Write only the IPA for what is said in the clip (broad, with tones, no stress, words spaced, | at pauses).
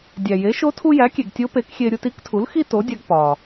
dʲæ˩je˩˥ʃo˧˥ tʰu˧jæ˩˥kʲe˩ɡ tʲo˧˥pe˩˥kxʲe˧ ɾʲu˧ti˧˥ktʰu˩˥l xi˥to˩˥dʲæ˧ɡ pɒ˩